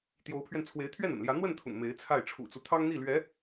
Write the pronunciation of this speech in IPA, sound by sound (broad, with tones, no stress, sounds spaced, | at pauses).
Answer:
t̪ j o˧˥ ʊ̯ pʰ ɥ ɛ˧ n t͡sʰ w e˧˥ ɪ̯ t̪ʰ ɥ ɛ˥˩ n ə̰˨˩ n l j ä˧˥ n̪ w ə˥˩ n t̪ʰ ʊ̰˨˩ ŋ m e˧˥ ɪ̯ t͡sʰ a˥˩ ɪ̯ ʈ͡ʂʰ ṵ˨˩ t͡s u˦ t̪ʰ ɑ˥ ŋ n̪ i˥˩ l ɥ ɛ˧˥